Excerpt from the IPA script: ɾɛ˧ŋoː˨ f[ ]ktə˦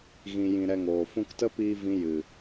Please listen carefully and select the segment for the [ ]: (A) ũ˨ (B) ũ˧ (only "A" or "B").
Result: B